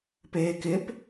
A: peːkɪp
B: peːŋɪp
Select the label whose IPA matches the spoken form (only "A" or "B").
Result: A